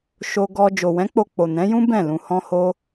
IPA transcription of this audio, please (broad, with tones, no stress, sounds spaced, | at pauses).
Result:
ʃ o˧ ɡ ɔ˧ d͡ʒ o˨ w ɛ̃˨˦ k͡p o˧ k͡p o˨ n ɛ̃˨˦ j ũ˦ b ɛ̃˦˨ l ũ˧ h ɔ̃˧ h o˧